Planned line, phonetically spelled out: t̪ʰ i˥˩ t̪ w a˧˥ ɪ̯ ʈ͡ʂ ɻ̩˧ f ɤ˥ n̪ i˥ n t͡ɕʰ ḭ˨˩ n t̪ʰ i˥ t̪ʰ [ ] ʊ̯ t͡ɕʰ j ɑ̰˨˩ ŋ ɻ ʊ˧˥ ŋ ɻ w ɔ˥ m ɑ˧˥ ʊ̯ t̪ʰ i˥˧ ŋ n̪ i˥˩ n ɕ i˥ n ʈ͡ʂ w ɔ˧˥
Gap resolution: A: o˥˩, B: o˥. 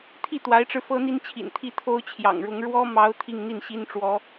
B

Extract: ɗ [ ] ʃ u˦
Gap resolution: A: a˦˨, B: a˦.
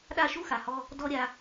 A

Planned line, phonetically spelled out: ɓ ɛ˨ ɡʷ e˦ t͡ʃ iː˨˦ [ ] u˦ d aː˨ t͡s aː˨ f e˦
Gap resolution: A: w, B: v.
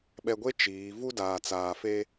B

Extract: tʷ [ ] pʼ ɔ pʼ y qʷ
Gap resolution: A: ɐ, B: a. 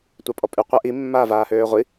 B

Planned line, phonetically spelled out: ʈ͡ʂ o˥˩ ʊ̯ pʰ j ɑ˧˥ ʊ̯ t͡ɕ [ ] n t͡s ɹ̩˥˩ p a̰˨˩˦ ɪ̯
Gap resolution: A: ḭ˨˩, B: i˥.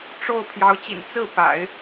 A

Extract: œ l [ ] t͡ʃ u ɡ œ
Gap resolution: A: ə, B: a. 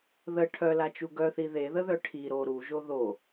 B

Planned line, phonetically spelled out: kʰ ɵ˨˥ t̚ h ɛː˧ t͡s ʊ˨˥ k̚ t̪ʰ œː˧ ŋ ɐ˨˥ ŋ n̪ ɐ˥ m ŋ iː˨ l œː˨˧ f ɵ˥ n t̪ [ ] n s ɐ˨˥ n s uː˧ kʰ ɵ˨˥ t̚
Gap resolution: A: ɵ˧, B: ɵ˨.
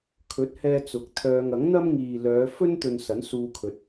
A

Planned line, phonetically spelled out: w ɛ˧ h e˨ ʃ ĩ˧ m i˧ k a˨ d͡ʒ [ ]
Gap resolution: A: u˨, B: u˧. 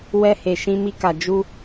B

